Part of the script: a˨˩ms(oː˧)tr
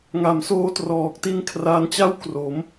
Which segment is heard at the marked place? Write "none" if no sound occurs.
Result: oː˧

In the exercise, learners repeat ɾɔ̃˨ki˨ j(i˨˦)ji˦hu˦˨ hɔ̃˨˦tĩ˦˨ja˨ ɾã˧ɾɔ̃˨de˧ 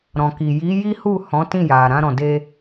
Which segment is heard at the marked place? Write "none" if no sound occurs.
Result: i˨˦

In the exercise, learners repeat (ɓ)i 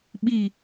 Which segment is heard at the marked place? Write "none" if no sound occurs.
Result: ɓ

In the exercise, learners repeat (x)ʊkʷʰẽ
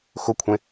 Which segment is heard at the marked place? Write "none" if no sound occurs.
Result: x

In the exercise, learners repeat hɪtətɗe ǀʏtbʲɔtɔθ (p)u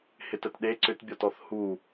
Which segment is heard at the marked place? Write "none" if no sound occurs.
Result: h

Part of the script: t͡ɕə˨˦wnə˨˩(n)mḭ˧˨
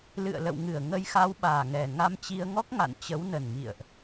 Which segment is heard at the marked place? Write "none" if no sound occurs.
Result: n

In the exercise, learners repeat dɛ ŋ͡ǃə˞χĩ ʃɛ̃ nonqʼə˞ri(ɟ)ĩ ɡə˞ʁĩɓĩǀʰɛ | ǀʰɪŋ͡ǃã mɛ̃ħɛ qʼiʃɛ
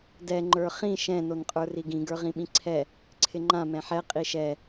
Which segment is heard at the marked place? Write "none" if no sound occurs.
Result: ɡ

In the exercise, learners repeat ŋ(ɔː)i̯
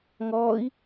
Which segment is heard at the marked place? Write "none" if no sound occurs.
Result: ɔː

